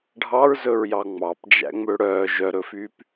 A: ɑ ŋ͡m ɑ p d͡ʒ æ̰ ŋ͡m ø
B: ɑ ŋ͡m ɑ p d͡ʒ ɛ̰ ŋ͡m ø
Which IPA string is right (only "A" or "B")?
A